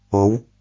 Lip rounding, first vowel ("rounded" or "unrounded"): rounded